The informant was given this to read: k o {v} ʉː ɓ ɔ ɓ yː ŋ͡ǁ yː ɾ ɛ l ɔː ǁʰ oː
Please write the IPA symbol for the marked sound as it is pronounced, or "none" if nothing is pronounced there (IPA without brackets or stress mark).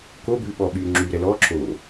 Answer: b